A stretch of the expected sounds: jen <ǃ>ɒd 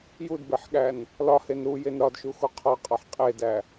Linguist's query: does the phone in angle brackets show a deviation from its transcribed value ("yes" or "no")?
yes